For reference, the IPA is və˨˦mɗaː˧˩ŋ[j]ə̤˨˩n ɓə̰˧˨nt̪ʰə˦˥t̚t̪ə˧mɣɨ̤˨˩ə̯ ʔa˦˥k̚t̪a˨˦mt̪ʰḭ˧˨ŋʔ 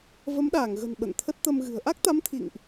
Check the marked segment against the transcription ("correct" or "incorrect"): incorrect